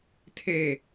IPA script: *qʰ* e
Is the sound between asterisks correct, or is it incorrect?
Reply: incorrect